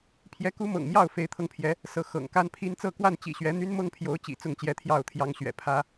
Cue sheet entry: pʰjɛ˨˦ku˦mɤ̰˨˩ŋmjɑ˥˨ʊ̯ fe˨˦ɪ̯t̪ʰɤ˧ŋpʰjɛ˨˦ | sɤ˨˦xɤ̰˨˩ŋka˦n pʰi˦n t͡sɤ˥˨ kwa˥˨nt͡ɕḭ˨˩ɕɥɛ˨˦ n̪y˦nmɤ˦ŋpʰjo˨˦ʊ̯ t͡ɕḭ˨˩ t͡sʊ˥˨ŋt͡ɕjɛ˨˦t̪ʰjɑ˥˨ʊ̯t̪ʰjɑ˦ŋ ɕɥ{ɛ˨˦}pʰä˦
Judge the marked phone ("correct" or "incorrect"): incorrect